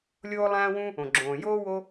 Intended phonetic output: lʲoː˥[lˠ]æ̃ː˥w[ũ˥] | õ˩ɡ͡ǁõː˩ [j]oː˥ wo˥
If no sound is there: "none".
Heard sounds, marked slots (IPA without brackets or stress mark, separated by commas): lˠ, ũ˥, j